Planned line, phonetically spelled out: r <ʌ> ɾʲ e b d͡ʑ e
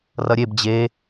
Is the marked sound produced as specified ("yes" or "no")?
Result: yes